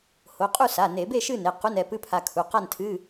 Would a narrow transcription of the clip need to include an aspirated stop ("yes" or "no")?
yes